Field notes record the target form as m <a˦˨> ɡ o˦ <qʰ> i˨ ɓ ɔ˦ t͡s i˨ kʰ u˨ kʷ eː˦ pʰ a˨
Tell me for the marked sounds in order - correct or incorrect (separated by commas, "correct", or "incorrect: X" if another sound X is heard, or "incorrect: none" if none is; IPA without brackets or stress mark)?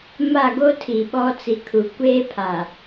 correct, incorrect: tʰ